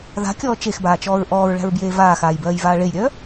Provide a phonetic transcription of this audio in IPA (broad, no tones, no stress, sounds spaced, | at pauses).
ð a̤ kʲ ɔː t͡ʃ e x b aː t͡ʃ ɔː ɹ ʔ ɔː ɹ ɭ æ̤ ɹ b j eː v aː x aː j b ɜː j v aː ɭ e j ɾʲ œː